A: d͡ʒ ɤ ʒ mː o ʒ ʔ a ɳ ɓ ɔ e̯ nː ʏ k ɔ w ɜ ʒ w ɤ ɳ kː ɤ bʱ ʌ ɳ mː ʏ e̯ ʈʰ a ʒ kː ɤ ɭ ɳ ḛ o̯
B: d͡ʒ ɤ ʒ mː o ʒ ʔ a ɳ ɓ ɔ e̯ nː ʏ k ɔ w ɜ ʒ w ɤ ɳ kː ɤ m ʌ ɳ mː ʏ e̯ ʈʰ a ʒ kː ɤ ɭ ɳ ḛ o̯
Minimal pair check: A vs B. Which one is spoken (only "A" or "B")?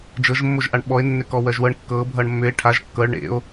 A